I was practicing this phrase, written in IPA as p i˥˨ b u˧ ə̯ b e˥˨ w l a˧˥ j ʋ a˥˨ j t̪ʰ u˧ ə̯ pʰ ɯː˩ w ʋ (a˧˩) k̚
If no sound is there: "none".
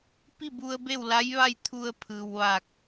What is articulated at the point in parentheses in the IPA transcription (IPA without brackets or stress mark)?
a˧˩